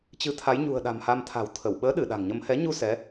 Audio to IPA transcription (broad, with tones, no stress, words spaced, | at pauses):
t͡ɕɨ˨˦t̪ʰa˨˦jɲṳ˨˩ə̯ ɗa̤˨˩mha˧mt̪ʰa̤˨˩w t̪ʰə˧˩w ɓəː˨˦ɗɨ˧˩ ɗa̤˨˩ŋɲə˧m hɛ˨˦ɲu˧ sɛ˨˦